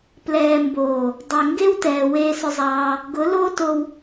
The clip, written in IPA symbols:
plɛː˨mboː˨ | dˤɛ˨ŋɡe˦wtɛː˨ weː˧sʊ˧zˤɑː˧ | ɡʊ˨˦ loː˦to˧w

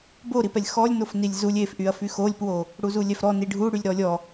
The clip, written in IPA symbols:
boɾipɛlʲ xɔlʲnofnilʲ zulʲ efʔyɐ̯fy xolʲpwo | ɽuzulʲɛfɾɔ niɖʱu ɽylʲɾɔlʲɔ

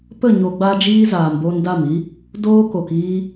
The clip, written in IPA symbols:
pə˦˨ ɲo˧ɡ͡ba˦ d͡ʒiː˦zaː˨m boː˧nda˦˨mi˦ | doː˦ ko˨k iː˦

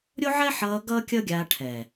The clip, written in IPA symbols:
ɾʲo˦ʕɛ˦ħʌː˧ ɡʌː˦kʲʌ˦ɡʲaː˧ ʈʰɛː˨

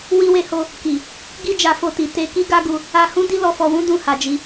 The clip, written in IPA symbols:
wi˧we˧ho˧ | ki˨ | ɡi˧d͡ʒa˨ fo˧ti˨ te˧ki˦ ɡa˦ɡu˧ | a˧hũ˦di˦ lɔ˧fɔ˧wũ˦ dũ˦˨ha˨d͡ʒi˧

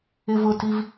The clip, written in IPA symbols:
ɪvʊtiv

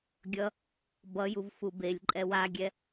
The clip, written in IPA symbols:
ɡʲʌ | bʌjuv fubelʲǃʼɛ waɡʲɛ

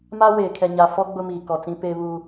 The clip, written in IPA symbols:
ma˦weː˨kʰɛ˨ ɲa˨fɔ˦ ɡ͡bʊ˦miː˨kɔ˨t͡sĩ˦ pe˦βu˦

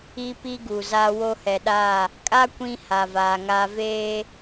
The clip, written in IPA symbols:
i˦pi˦ɡu˨za˦ wo˦hɛ˨ɗa˦˨ | kʼa˦ kʷĩ˦ ha˨vaː˨ŋaː˦ veː˦

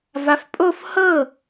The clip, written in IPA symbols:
vafpʼof hɤ

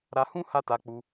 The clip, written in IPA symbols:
ɾa˧hũ˦ ha˦ta˧k͡pu˧

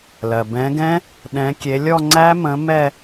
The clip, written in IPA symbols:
lɜ˩ bɛ̃˨˦ɡɛ̃˦˥ | ɗɛ̃˨˦kʲe˨˦lʲɔ˥˧ ŋ͡ǀæ˦˥mə̃˨˦ mɛ˥˧

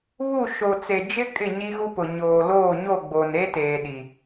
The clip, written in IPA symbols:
βu˦˨ ʃo˨t͡se˨ d͡ʒɪ˦ kʼɪ˦˨ ɲi˦ɣu˦pʊ˨ ɲoː˨loː˦˨ ɲo˦˨ɡ͡bo˨ne˦teː˨ ɗi˨

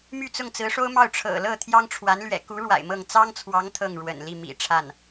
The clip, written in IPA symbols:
my˥˧t͡sʊ˥˩ŋ t͡sɹ̩˧˥ʂo˥ʊ̯ mɑ˥˩ʊ̯ʈ͡ʂʰɤ̰˨˩lɤ˥˩t̪ʰjɑ˥ŋ ʈ͡ʂʰwa˧˥nlɥɛ̰˨˩ ku˧˥ɻwa̰˨˩ɪ̯ mɤ˥˩ŋ t͡sɑ˥ŋt͡sʰwɑ˧˥ŋ t̪ʰɤ˥˩ŋɻwə̰˨˩n li˥˩ mḭ˨˩ʈ͡ʂʰa˥˩n

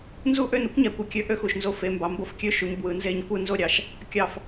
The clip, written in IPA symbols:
nzu˥˧ʔø˥˧nu˥kʷ ɲæ˨˦kʷɯ˨˦kʲø˥ ʔø˥xu˧˩ʃ nzo˥˧fe˨˦mbɑ˨˦ mbo˥˧fkʲø˥ʃu˨˦ɲ bwɯ˨˦nze˥ɲ kʷɯ˥˧ nzo˥˧ɾʲɑ˧˩ʃ | kʲɑ˧˩f

